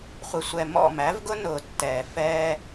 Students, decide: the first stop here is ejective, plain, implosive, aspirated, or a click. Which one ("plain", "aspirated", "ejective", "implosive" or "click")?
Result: plain